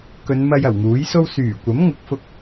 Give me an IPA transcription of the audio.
kɵ˨˧n mɐ˧j ɐ˨˩wŋuː˨˥jso˥w syː˨˩kʷɐ˨˥m ŋʊ˨˥k̚fʊ˧k̚

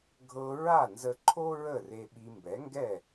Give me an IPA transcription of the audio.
ɡʱɤ˧ ɹa˥˩nzə˧ǃʰo˥ ɹə˥˩re˧ɓi˧ mbɛ˩˥ŋɡɛ˥˩

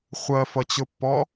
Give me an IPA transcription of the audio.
χʷɜfʌt͡ɕʊpːɔ

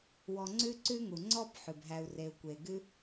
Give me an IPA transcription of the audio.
wɔ˨ŋ͡ǀʉ˦ ǀʉ˦ŋu˩ ŋ͡ǀɔ˥b ħʉ˩bɦæ˨u̯re˨u̯ kʷe˩ ɡʉ˦

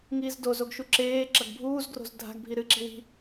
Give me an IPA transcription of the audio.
ŋiːzdozoɡʃu ǁeː ǁɐɡbʱuːz ɡro̤zdʱa̤ɡ bʱiɾɨ ǁi̤wi̤

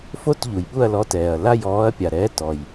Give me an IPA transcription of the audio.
fo˦˨tʎu˩j ɓu˦˨ɐ̯lɔ˨˥tɛː˩ɐ̯ la˦˨jɔː˨˥ɐ̯pʲa˩ɾɛː˨˥ tɔ˩j

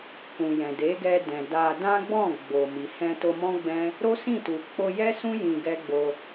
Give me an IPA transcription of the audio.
kũ˨jɛ̃˨ de˨˦ɡɛ˧ dɛ̃˨da˧ dã˦ɡ͡bɔ̃˦˨ ɡ͡bo˨mi˨ hɛ̃˧to˧mɔ̃˦ɡ͡bɛ̃˦ | ɾo˦sĩ˦˨tu˨ k͡po˧jɛ˦sũ˦ jĩ˧ɡɛ˦ɡ͡bo˧

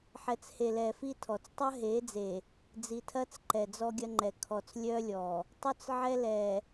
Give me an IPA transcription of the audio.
ħɛ˨t͡she˨ lɛ˨fi˦tʰɔ˨t͡s tˤɐ˦ɦe˨˦d͡ze˨ | d͡zi˨tʰɐ˦t͡sǃɛ˨ d͡zɔ˦ɡʲɐ˦ŋ͡ǃɛ˨ kʰɔ˨t͡slʲœ˦lʲɔ˨ | tˤœ˦t͡sʕɛ˦ lɛ˨

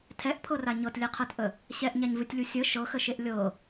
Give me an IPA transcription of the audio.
tʰɛʔpʰɤra ɲɤtlʲɛqʰɤtʔə | ɕɛʔɲaɲvɨtʲlʲu sʲə ʃɤxəʃeʔ lʲɤ

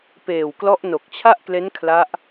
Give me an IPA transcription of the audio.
peː˨˩wklɔ˦˥ʔ no˨˩k̚t͡ɕʰa˥˩ʔkle˦˥n kʰla˦˥ʔ

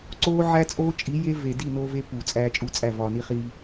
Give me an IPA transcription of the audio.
ǀoː˦ʕæ˦t͡sʼoː˦ t͡ʃʼi˨˦je˦ve˨ di˦˨ noː˦ve˦ puː˨t͡sʼæː˦t͡ʃʼu˦ t͡sʼæ˦˨vɒː˨ni˦χiː˦

